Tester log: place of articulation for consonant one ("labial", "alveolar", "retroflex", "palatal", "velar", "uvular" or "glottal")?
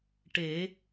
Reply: retroflex